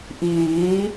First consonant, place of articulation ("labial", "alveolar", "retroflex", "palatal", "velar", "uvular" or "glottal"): glottal